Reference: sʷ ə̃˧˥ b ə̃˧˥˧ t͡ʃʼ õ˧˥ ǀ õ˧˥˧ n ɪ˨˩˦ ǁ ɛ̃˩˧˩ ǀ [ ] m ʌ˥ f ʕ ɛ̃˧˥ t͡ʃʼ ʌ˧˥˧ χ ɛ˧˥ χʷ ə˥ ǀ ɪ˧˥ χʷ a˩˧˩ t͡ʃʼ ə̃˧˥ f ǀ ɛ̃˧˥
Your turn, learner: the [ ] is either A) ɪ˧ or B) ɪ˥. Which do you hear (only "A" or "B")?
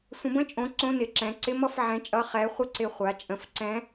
B